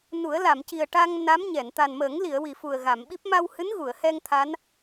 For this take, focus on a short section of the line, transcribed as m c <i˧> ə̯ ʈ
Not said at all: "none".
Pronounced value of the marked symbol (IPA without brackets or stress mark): i˨˩